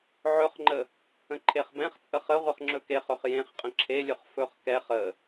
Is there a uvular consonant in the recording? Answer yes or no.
yes